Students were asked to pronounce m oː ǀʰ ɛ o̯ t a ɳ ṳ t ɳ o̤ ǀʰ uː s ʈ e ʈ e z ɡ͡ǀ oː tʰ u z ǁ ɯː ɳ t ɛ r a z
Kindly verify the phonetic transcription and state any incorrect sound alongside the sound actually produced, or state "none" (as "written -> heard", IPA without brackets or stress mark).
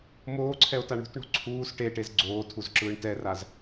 none